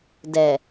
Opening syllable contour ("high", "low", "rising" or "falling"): low